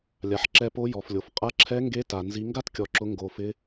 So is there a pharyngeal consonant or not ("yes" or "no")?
yes